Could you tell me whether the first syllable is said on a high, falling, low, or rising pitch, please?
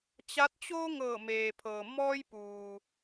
rising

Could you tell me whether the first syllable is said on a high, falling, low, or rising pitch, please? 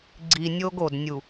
low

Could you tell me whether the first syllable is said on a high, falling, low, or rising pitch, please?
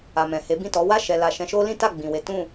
low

